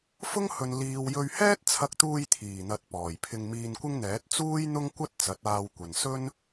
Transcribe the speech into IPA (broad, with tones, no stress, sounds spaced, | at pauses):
f ʊ˥ ŋ h ɵ˨ n l iː˨ w j ɵ˧ ɥ h ɛː˥ t̚ t͡sʰ ɐ˧ k̚ t̪ uː˧ j t̪ʰ iː˨˩ n̪ ɐ˨ t̚ p ɔː˨˩ j pʰ ɪ˧ ŋ m iː˧ n kʷ ɪ˥ ŋ n̪ ɛː˨˥ t̚ t͡s uː˥ j n̪ ʊ˥ ŋ kʷ ɐ˥ t̚ t͡s ɐ˨˥ t̚ aː˧ w kʷ ɐ˨ n s ɵ˥ n